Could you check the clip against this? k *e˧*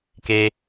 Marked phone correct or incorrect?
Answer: correct